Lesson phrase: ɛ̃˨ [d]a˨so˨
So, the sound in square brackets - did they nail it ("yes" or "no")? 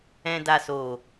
yes